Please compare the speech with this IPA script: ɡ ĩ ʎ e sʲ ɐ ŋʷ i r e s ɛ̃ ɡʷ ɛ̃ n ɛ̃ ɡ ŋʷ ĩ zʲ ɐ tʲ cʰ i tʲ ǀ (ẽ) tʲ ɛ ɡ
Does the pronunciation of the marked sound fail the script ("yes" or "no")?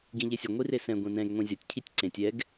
no